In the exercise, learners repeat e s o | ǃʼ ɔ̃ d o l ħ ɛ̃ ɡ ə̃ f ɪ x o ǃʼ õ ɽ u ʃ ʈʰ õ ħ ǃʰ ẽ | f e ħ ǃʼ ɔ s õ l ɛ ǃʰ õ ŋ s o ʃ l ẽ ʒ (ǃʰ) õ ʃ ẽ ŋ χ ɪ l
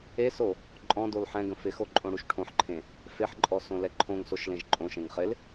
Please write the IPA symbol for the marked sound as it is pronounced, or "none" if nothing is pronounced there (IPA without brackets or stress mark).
ǃʼ